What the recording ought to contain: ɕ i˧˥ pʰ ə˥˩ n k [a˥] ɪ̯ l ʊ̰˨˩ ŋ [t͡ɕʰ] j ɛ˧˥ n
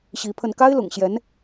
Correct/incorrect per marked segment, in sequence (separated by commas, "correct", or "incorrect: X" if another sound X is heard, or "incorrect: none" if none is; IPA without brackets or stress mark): correct, incorrect: ɕ